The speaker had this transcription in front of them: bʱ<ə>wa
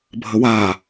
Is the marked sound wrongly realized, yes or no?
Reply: no